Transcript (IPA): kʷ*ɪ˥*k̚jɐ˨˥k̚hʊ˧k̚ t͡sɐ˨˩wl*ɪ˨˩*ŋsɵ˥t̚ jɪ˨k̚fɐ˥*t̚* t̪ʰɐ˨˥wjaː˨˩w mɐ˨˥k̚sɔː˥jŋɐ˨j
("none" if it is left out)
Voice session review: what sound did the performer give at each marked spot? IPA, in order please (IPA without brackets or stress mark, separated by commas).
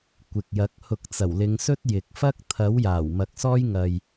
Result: ɪ˨, ɪ˨˧, k̚